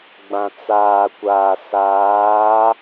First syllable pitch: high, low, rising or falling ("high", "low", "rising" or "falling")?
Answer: low